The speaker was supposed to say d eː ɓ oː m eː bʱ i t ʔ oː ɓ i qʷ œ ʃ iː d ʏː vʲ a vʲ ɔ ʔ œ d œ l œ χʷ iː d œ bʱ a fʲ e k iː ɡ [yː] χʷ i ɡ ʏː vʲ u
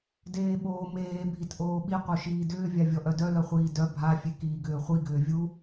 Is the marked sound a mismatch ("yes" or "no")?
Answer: yes